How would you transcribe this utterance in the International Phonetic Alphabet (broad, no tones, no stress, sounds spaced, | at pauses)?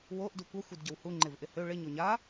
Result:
w o ʔ d u kʷ ɐ xʷ i d ɟ ə w h u ŋ͡ǃ ɪ v ʔ ɪ h ø ɭ ɪ ɲ o ɲ a